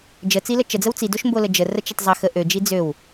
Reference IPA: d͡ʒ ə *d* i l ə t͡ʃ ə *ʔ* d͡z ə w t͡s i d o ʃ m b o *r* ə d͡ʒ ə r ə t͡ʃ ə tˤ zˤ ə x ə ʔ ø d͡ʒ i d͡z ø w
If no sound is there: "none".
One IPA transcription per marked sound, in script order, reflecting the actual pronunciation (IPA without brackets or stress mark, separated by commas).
t͡s, none, l